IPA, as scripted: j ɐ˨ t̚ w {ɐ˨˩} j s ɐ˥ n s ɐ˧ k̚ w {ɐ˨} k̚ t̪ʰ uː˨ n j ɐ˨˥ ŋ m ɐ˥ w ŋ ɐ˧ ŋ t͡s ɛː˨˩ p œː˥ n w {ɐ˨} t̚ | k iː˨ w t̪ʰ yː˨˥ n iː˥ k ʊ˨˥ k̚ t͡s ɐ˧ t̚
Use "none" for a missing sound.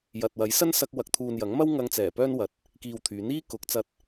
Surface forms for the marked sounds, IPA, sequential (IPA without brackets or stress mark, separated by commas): ɐ˨˥, ɐ˨, ɐ˨